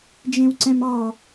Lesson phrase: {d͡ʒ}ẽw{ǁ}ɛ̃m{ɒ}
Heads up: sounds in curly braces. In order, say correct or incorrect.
correct, incorrect, incorrect

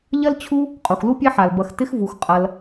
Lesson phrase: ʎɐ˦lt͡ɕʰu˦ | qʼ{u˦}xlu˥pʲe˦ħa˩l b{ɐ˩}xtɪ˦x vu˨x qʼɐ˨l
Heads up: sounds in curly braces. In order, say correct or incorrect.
incorrect, incorrect

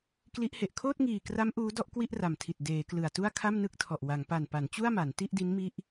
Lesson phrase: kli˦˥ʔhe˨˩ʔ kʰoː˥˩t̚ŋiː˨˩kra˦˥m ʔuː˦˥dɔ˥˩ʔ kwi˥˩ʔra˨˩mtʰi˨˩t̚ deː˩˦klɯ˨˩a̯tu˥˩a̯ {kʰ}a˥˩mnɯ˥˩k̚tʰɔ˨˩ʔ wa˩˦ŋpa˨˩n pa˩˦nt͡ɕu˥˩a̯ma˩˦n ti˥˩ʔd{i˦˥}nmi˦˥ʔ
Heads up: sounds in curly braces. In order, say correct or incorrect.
correct, correct

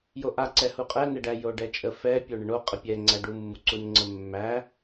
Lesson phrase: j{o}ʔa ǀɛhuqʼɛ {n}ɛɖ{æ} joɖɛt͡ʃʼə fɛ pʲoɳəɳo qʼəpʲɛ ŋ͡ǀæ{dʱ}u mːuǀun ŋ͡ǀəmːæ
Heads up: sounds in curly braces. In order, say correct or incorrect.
correct, correct, correct, incorrect

